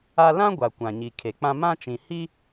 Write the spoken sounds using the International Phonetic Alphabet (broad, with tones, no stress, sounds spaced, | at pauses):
a˦ l ã˦ ɡʷ a˨ kʷ ã˨ ɲ i˨ kʰ e˨ k͡p ã˦ m ã˦ t͡ʃ ĩ˨ h i˦